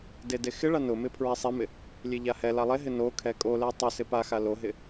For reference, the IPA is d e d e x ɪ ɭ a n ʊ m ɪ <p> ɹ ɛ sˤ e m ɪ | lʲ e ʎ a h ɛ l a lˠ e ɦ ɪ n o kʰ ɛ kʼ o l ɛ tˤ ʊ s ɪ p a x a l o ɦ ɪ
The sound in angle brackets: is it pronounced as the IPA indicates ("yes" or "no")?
no